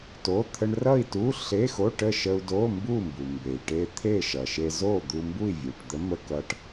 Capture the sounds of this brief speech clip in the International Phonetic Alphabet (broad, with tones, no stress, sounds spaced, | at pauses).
t o˩˧˩ t̪ʰ ə˧ ɳ r ʌ˥˨ i̯ t u˧˥˧ ɬ e˧˥˧ x o˧˥˧ ʈ ə˥˨ ʃ ə˧ u̯ d o˧˥˧ m b u˥˨ m b u˩ m b e˩ i̯ ʈ e˧ t̪ʰ e˥˨ ʃ ʌ˩ ʃ e˧ z o˥˨ d̪ u˧ m b u˥˨ i̯ vʲ u˩ ʈ d̪ ə˧˥ m ə˧ k ʌ˧˥ ʈ